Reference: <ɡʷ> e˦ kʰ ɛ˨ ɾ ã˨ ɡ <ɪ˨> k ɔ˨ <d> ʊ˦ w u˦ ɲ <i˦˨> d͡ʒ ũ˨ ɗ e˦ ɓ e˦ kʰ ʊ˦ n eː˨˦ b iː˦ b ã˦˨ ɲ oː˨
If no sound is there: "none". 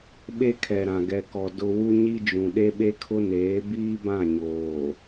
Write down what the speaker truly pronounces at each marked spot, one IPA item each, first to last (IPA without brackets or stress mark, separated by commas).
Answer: ɓ, ɛ˨, d, i˦